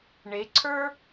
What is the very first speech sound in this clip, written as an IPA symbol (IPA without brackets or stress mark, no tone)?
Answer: ɳ